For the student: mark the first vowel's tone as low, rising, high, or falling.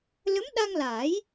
rising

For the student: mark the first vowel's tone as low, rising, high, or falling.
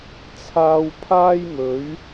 low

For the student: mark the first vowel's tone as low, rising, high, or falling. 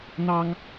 high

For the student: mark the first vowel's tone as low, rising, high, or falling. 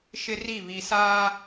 high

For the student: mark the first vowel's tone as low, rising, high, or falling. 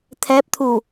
rising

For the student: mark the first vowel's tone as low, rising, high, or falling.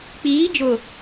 rising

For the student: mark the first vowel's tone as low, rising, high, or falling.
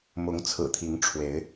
rising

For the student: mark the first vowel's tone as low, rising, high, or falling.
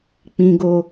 high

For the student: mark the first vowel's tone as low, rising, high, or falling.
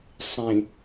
low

